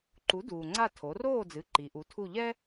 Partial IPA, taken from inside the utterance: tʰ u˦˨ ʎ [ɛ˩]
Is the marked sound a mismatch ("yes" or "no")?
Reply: yes